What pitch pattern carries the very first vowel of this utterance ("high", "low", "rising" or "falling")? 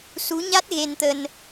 rising